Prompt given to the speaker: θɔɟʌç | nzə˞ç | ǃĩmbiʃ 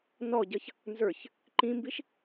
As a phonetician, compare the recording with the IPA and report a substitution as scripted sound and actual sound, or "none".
θ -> n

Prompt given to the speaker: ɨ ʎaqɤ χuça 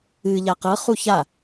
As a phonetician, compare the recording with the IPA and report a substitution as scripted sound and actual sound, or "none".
none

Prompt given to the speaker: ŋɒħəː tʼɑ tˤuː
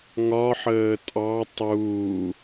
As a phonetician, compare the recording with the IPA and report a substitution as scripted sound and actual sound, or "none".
none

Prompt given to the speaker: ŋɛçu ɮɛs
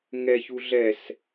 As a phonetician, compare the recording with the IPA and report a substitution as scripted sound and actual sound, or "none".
none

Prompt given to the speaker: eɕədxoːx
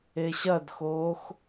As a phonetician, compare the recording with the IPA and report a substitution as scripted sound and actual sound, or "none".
ə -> ɐ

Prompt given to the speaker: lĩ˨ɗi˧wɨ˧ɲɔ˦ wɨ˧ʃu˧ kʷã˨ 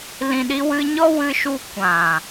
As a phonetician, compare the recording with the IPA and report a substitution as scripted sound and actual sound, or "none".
none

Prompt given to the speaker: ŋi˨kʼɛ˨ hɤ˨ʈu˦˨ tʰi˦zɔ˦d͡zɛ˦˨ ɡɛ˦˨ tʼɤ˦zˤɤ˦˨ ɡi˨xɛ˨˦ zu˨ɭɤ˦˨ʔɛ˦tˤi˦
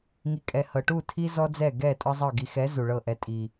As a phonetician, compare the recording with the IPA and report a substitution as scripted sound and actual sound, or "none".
tˤ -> tʼ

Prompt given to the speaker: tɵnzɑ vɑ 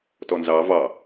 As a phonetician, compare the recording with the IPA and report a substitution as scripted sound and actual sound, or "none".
ɵ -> ɔ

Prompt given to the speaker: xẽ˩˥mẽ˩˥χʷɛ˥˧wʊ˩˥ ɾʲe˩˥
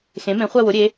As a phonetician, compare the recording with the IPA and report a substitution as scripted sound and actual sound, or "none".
none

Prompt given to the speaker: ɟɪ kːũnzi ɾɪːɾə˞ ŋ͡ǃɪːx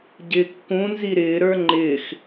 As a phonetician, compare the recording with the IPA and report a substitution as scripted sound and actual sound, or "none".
none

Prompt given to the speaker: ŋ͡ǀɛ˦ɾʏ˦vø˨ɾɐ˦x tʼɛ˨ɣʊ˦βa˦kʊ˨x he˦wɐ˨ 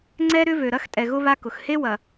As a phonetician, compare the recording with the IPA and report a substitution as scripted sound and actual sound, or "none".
none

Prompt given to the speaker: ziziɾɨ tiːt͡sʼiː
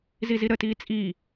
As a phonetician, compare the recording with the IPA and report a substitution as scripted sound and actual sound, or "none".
ɨ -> ə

